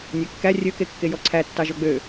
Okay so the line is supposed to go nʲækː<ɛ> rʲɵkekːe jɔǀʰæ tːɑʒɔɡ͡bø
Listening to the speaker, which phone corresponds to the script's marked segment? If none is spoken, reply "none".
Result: æ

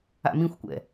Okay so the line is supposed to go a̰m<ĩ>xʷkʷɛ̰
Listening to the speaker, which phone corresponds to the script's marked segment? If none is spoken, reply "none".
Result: ĩ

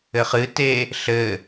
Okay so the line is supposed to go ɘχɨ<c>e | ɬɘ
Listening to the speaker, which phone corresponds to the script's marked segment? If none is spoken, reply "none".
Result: t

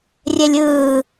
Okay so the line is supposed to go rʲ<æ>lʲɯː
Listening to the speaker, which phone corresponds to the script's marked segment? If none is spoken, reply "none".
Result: ɛ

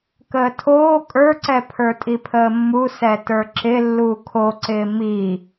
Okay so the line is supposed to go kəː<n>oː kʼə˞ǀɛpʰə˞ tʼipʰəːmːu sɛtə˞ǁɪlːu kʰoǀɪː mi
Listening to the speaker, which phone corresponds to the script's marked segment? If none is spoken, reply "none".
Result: tʰ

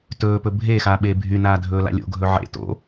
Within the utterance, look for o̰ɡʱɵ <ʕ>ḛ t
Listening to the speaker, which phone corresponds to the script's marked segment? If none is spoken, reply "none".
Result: ʕ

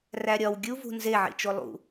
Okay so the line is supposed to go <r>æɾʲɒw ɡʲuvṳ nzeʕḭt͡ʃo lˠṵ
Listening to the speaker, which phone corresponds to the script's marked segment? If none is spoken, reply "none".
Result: r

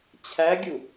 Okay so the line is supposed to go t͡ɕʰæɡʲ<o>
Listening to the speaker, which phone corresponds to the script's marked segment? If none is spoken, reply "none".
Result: u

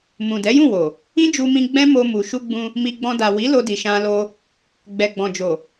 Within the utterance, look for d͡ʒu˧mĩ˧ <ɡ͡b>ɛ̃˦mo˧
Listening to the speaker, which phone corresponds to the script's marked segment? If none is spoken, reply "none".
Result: ɡ͡b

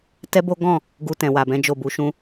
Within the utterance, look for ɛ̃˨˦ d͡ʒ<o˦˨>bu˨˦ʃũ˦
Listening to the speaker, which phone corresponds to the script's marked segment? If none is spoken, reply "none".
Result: o˦˨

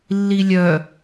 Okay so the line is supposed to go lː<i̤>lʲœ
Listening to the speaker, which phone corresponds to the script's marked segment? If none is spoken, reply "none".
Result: i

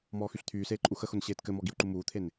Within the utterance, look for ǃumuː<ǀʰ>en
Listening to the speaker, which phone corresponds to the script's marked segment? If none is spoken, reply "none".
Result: t̪ʰ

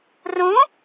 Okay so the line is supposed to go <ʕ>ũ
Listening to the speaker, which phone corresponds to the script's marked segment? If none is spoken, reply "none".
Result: r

